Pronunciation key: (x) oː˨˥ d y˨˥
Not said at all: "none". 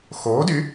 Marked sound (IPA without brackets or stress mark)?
x